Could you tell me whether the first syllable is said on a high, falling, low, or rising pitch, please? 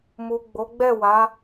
low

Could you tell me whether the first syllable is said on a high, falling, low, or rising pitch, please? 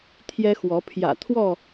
high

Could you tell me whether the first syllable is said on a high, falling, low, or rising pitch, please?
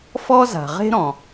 high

